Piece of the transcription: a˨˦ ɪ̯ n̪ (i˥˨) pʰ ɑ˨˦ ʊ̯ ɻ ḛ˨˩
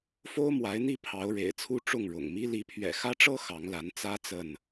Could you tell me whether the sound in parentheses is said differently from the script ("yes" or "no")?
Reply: no